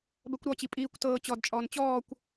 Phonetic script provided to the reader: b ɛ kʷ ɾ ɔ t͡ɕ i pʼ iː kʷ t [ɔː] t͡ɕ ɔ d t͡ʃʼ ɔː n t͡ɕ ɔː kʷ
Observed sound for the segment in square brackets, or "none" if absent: ɤː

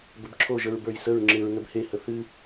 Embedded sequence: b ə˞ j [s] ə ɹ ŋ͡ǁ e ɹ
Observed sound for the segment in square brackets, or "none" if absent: s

